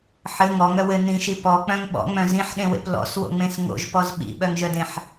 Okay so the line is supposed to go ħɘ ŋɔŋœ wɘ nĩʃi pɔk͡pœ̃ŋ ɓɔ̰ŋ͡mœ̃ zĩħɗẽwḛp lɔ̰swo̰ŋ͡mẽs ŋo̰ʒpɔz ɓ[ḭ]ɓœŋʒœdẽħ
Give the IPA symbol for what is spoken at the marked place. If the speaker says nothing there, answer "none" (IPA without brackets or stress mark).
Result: ḭ